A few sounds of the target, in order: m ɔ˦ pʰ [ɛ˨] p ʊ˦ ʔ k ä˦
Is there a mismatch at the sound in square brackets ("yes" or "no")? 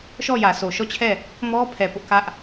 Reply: no